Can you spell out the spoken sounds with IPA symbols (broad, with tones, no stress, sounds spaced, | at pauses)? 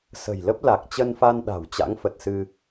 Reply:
s ə̤˨˩ j l ə˦˥ p̚ l a˨˩ k̚ t͡ɕ ə˧ n f a˧ n ɗ a̤˨˩ w t͡ɕ a̰˧˥ ŋ f ə˨˩ t̚ s ɨ˧